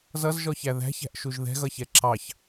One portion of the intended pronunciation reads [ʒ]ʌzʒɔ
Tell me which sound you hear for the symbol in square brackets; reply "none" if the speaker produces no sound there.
z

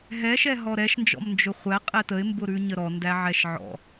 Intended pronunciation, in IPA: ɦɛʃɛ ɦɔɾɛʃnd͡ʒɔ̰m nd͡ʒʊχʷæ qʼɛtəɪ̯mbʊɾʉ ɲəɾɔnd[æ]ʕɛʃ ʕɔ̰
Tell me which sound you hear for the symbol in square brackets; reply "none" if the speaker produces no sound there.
æ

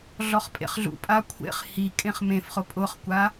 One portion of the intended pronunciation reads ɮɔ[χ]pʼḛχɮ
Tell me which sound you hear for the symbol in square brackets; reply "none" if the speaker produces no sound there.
χ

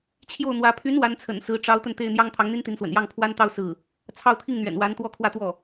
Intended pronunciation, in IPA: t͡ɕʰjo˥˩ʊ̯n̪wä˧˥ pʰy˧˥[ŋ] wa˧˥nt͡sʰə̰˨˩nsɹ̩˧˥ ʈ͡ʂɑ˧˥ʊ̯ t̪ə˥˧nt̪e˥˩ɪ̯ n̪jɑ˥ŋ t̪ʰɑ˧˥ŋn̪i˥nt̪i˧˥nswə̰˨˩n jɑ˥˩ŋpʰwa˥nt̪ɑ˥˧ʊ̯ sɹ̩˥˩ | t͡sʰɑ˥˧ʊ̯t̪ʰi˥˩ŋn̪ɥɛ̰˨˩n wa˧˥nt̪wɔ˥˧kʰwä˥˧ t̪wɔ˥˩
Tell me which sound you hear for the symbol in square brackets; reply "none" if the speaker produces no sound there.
n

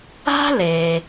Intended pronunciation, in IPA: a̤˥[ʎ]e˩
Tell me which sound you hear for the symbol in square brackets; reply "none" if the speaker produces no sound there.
l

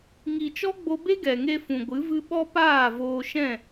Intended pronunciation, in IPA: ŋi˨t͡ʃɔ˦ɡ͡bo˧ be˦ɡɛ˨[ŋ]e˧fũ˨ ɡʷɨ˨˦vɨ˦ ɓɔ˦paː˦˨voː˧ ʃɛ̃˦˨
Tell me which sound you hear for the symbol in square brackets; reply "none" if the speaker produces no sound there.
ŋ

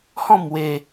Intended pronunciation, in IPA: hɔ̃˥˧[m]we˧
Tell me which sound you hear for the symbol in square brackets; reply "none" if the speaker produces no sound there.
m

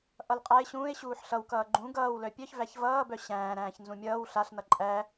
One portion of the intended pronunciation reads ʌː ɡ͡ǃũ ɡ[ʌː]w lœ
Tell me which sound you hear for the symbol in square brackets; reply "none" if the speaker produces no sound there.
ʌː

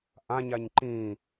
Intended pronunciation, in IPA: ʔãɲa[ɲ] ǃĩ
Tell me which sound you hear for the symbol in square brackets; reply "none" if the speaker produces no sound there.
ɲ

